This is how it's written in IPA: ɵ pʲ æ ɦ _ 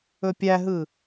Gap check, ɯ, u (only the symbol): ɯ